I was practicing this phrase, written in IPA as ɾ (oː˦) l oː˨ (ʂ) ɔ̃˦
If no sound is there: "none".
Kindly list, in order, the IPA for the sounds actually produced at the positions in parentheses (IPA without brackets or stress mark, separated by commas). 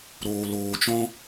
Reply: oː˨, t͡ʃ